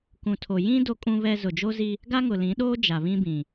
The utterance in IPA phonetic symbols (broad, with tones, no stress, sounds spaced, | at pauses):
k ũ˨ tʰ o˨ j ĩ˦ d o˦ kʼ ũ˦ β ɛ˦ z ʊ˨ d͡ʒ o˦ z i˦ | ɡ a˦ ŋ ʊ˨ l ĩ˨˦ ɗ oː˦ d͡ʒ a˨ β ĩ˦ b ĩ˨